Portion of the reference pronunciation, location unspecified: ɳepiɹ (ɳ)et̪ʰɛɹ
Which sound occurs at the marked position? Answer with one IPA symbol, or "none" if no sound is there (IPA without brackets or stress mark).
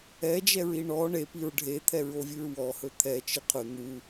ɖʱ